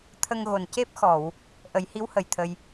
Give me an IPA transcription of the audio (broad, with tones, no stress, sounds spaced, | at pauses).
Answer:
t̪ʰ ə˧ ŋ ɣ o˨˩ n c e˦˥ p̚ x ɔ˨˩˨ w | ʔ ə˨˩˦ j h i˧˥ w h ə˨˩ j t̪ʰ ə˧ j